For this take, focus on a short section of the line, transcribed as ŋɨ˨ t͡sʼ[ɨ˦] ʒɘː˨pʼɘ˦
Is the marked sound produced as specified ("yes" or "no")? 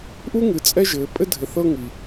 no